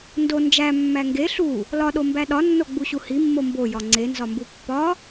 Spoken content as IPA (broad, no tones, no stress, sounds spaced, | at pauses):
n d o n d͡ʒ æ mː æ ŋ ɡ e ɬ u | l ɒ ɗ o m b æ ɗ ɒ nː o ɡ͡b u ɕ u h i mː o m b o j ɒ ŋ͡ǀ e n z ɒ m b u pː ɒ